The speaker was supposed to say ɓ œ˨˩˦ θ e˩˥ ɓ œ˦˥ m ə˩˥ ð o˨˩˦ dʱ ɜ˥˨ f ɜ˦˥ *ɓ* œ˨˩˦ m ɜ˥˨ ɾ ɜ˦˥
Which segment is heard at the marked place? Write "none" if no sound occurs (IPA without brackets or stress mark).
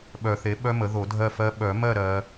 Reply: ɓ